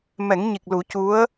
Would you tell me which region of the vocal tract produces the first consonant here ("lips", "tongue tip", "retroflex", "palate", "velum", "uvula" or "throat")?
lips